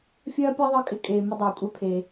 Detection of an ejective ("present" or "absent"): present